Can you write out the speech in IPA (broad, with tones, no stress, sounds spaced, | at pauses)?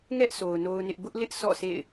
ŋ ɛ˦ ʔ sʰ o˨ ʊ̯ n o˦ ʊ̯ n ɪ˦ ʔ b ʊ˦ ʔ l ɪ˦ ʔ sʰ ɔ̰˦˨ s ḛ˦˨ ɪ̯